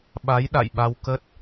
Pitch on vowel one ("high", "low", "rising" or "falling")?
rising